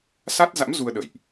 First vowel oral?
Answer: yes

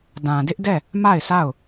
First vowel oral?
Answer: no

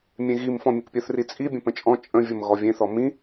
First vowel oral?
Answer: no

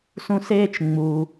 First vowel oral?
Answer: no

